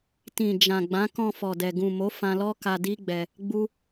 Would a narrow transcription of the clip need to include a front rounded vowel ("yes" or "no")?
no